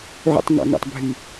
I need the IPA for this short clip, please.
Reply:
ʕ o̰ tˤ ŋ ɑ̰ ŋ ɑ̰ tˤ bʱ y

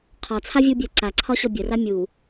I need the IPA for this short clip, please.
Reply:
qʰ ɒ t͡sʰ a vʲ u bʲ ɜ ǀ a ǀʰ ɒ ɕ ɔ bʲ ə r a mʲ u

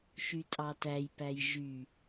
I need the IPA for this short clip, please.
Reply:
ʃ y tʼ ɑ t æ j p æ j ʒ y

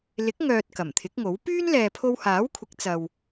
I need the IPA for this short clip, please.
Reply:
l ɪ˨˥ k̚ ŋ œː˨ t̚ k ɐ˨˩ m t̪ʰ ɪ˨˥ k̚ ŋ o˨˥ w p yː˥ n l ɛː˨ pʰ o˧ w h aː˨˥ w kʷʰ ɪ˨˥ k̚ t͡s ɐ˨ w

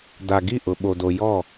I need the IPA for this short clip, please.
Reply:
d a˨ ɡ i˦˨ ʔ ʊ˨ ɓ o˨ d o˨ j ɔ˦˨

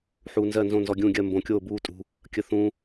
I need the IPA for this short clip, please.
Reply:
ħ uː˩ n z ɜ˧˩ n z õ˧˩ n z ɔ˩ ɡʲ ũː˧˩ ɡʲ ɜ˧˩ m b õ˩ kʲ oː˧˩ b uː˧˩ tʼ ṳ˩ | kʲ ə˩ θ ũ˩

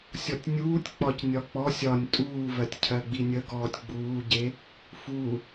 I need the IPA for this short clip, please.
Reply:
sʲ ɔ tʲ nʲ uː tʲ k͡p ɒ c nʲ ɒ k͡p ɔ sʲ ɒ nʲ tʼ uː v ɜ tʲ cʰ ɜ ɡ͡b i nʲ ə ɡ ɔː tʲ ɡ͡b uː ɟ e | f u

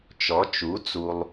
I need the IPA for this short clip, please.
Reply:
t͡ʃ ɔ˩˥ t͡ʃ u˩˥ t͡s u˨ lˠ

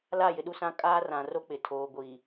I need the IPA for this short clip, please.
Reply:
l a˦˨ j ɪ˨ ɗ u˦ s ã˦ kʼ aː˦ r ã˨ r o˦ k͡p ɪ˨ tʰ oː˨ ɡʷ iː˨

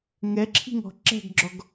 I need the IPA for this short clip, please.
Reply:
ŋ ɛ ǁʰ i̤ ŋ ɔ̤ ǁ ɛ̤ ɡ ɡ͡ǁ ɔ ɡ

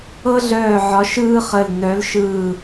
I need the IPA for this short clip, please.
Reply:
ɤ˥ ɮ œː˦˨ ʕ ɒ˧˥ ʃ ɯː˥ χ ə˦˨ l n œ˧˥ l ʃ ɯː˦˨

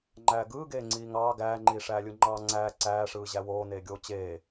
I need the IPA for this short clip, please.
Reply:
ŋ͡ǃ æː ɡ ɯː ɡ eː ŋ͡ǀ iː ŋ ɑː ɡ æː ŋ͡ǃ iː ʂ æː lʲ ɯ ŋ͡ǃ ɑː ŋ͡ǀ æː ǀ æː ʂ ɯː ʑ æ w oː n eː ɡʲ oː t͡ɕ eː

